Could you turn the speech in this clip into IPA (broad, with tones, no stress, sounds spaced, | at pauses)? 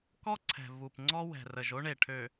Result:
k ɔ˦ ǀʰ ɛ̤˨ v u˨ p ŋ͡ǀ ɔ˦ w ɛ̤˨ r ə˨ ʒ o˦ ɳ e˨ ʈʰ ø˨